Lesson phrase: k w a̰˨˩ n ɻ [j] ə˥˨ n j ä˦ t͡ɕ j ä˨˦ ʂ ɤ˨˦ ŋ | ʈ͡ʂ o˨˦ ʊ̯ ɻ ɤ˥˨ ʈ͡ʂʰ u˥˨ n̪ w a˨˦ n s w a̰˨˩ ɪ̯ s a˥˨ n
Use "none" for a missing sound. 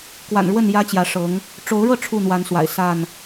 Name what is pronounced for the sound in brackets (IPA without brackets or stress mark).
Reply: w